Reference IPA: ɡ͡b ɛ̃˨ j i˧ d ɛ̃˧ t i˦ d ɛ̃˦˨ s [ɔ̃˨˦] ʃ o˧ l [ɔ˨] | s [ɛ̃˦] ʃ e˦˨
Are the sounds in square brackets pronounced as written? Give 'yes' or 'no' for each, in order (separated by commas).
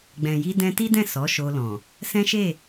no, no, yes